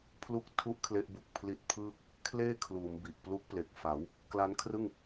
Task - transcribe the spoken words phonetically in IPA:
pʰ l u˦˥ k̚ tʰ u˦˥ ʔ kʰ l e˦˥ ʔ b u˨˩ k̚ pʰ l i˦˥ t̚ pʰ ɯː˥˩ k̚ | kʰ l eː˥˩ kʰ l uː˩˦ m b i˨˩ ʔ p l u˦˥ k̚ p l e˨˩ k̚ f a˩˦ w | k l a˦˥ n kʰ r ɯ˥˩ ŋ

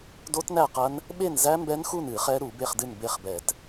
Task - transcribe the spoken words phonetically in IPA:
d o˦˥ t n æ˥˨ q ɐ˦˥ n | ɓ e˥˨ n z æ˦˥ m b ɛ˦˥ n x u˥˨ n ɨ˧˩˧ χ ɛ˦˥ ɾ u˧˩˧ b e˥˨ χ d ɨ˥˨ n b e˥˨ χ b ɛ˧˩˧ t

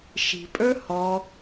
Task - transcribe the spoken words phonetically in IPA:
ʃ i̤ pʼ ə˞ h ɔ

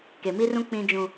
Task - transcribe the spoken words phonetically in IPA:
k e˨ m i˦ r ũ˦ k͡p ĩ˦ d͡ʒ ũ˦

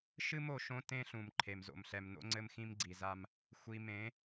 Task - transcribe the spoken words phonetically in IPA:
ʃ ɨ˦ m o˨ ʃ õ˦ t ẽ˦ ɬ ũ˨ m ǃʰ e˨ m z o̰˨ m ɬ ɛ˨ m n o̰˦ ŋ͡ǀ ɘ˦ m x ĩ˦ m ɡ͡ǀ i˨ z a˦ m | xʷ i˨ m ẽ˨˦

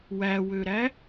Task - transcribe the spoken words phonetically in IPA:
w æ w ø ɾ æ

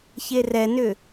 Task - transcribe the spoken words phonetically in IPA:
ç e r ɛ n ʏ

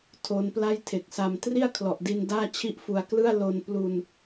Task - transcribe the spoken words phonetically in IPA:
tʰ o˦˥ n p l a˥˩ j tʰ e˨˩ k̚ s a˧ m t r i˥˩ a̯ kʰ l ɔ˨˩ ʔ d i˧ n d aː˥˩ t͡ɕʰ i˥˩ ʔ f u˧ a̯ k l ɯ˥˩ a̯ l o˧ n p l u˧ n

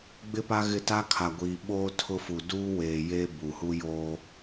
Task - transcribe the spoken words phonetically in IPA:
ɡ͡b ɪ˦ p a˦ ɣ ɪ˦˨ t a˦ kʰ a˨ ɡʷ iː˨ ɓ oː˦ tʰ ʊ˦ f u˨ d uː˦ w eː˨ j eː˦ b u˨ h u˦ j oː˦

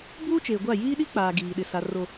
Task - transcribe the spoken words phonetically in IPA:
b uː˦ t͡ʃ eː˨ ɡʷ a˦˨ j iː˦ ɗ i˦ k͡p aː˨ ɡ iː˨ ɗ ɪ˨ s a˨ r o˨

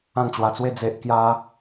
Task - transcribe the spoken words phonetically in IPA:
ã˥˧ n t͡ɕ w a˧ t͡s w e˦ d͡z e˦ ʔ k j a˦

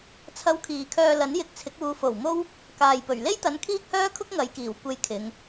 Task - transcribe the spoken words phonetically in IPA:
t͡sʰ ɐ˧ w kʰ iː˨ kʰ œː˧ l ɐ˨˥ n j ɪ˧ k̚ t͡sʰ ɪ˨˥ k̚ uː˨˧ f o˨˩ w m o˥ w | k aː˨ j p ɵ˨˩ ɥ l e˥ j t̪ ɐ˨˧ n kʰ iː˥ k̚ h œː˥ kʰ ʊ˥ k̚ ŋ ɐ˨˧ j k iː˨˩ w kʷ e˧ j kʰ ɪ˨˧ ŋ

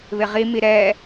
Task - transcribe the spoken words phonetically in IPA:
β ɪ ʁ i m i ɾ ɛ

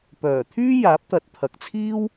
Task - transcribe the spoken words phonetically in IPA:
p œː˨˩ t̪ʰ yː˥ j aː˨˥ p̚ t̪ ɐ˨ t̚ t̪ʰ ɐ˨ k̚ t͡sʰ iː˥ w

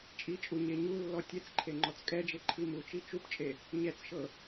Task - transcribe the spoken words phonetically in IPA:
t͡ʃʼ i t͡ʃʼ u ɲ e ɲ u lː ɔ tʲ ɛ t͡s ǃʰ e ŋ͡ǃ ɔ t͡s kʼ ɛ d͡ʒ e ǃʰ i m u t͡ʃ i t͡ʃ u p t͡ʃʼ e | ɲ ɛ t͡s ʃ ɤ

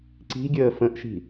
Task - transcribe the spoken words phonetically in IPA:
ǀ i̤ ɡʲ əː f ə̃ ʔ ʃ i̤

